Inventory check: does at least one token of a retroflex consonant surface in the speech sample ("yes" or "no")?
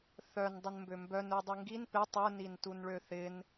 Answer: yes